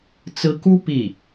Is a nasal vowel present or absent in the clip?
absent